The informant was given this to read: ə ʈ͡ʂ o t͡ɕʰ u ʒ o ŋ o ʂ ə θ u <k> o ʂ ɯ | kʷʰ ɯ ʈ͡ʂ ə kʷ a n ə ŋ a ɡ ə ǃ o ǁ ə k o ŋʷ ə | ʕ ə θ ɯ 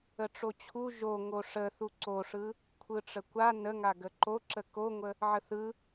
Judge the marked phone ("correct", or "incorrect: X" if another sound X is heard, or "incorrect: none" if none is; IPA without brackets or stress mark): incorrect: ǀ